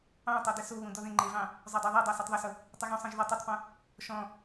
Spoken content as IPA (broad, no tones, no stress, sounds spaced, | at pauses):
ɑ̃ tˤ o d ɘ s o β ũ d ɔ ð ẽ ŋ͡ǃ e v ɑ̃ | zˤ o dˤ o ðˤ e dˤ ɑ s e tˤ ðˤ ʊ s ʊ | tˤ ɘ ɣ ũ sˤ ẽ ʒ ð ʊ tˤ ɘ tˤ p õ | ʃ ɔ̃